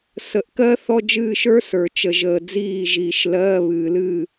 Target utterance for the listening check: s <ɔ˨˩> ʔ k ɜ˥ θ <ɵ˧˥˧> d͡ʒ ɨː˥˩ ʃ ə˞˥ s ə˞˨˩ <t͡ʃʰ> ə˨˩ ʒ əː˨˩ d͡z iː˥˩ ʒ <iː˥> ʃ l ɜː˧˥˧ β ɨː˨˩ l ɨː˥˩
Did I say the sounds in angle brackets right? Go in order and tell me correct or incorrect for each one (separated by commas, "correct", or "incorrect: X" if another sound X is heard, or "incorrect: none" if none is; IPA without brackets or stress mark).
incorrect: ə˨˩, incorrect: ɔ˧˥˧, incorrect: t͡ʃ, incorrect: iː˨˩